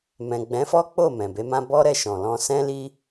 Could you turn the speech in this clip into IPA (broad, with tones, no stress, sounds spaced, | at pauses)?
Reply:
m ɛ̃˨ ɡ͡b ɛ̃˨˦ f ɔ˦ k͡p o˦˨ m ɛ̃˨ b e˨˦ m ã˦ b ɔ˦ ɾ ɛ˧ ʃ ɔ̃˨ l ɔ̃˧ s ɛ̃˦ l i˦